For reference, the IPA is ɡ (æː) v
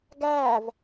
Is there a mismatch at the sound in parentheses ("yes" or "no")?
no